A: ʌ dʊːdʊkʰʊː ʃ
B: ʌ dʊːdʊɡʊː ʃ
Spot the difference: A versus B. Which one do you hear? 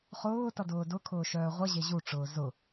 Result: A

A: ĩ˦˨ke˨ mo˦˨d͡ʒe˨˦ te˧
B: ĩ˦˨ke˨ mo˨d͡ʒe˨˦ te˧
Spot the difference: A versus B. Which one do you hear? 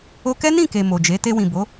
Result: B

